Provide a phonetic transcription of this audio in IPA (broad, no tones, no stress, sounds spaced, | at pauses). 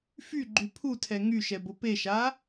f y ɡ͡ǃ y pʰ u tʰ ɛ ŋ y ʃ ɛ b o p e ʃ a